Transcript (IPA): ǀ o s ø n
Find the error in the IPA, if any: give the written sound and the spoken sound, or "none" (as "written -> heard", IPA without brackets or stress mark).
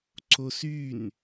ø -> y